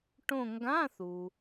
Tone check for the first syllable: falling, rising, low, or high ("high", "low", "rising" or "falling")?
falling